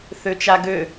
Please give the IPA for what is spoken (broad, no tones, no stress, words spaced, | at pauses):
θøt͡ʃaɡø